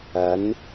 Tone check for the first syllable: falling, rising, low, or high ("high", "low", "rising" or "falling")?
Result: rising